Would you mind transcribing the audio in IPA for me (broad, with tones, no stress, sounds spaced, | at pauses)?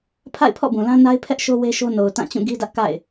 pʰ a̰˦˨ ɪ̯ pʰ ɔ̰˦˨ b ũ˨ l ã˦ n a˦ ɪ̯ pʰ ɛ˦ ʔ ʃ o˦ w e˦ ʃ o˦ n o˨ ʊ̯ t ã˦˨ t͡ɕ ũ˦˨ ɡ i˦ d ä˦ ʔ k a̰˦˨ ɪ̯